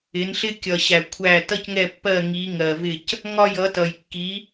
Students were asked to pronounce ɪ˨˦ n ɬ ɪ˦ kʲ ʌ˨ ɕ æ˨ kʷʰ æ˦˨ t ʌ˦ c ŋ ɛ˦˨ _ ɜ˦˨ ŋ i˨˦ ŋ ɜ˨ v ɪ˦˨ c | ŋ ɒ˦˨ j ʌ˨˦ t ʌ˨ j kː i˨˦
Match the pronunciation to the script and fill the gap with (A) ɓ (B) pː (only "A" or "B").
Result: B